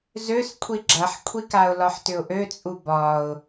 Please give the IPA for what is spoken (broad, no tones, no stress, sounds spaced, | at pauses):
z ø s kʷʰ i ɡ͡ǁ ɐ ħ kʷʰ i k a ʊ̯ l ɒ ħ t ʏ ʊ̯ ʔ ø t͡sʼ u b ɒ ʊ̯